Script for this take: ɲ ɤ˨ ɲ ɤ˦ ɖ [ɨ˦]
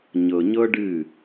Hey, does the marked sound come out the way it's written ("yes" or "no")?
no